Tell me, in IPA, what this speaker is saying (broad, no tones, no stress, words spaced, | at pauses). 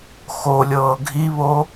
xolʲɤː ɡʱiβo